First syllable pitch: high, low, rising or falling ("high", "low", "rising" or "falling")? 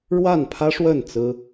falling